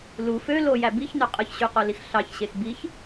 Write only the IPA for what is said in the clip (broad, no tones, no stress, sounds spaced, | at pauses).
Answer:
l u f ø l o j æ b i ç n ø qʼ ɯ ç ɕ y q o l i x ɬ ɑ ç ɕ e x b i ç